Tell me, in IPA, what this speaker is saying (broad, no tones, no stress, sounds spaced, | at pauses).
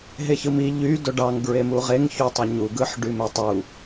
ɦ e ç ɯ m i ʎ y d o ɖ ɑ ŋ ɡ ɹ e m u ʁ e ŋ ç u tˤ o ɲ u ɡ ɯ ħ ɖ y m e tˤ u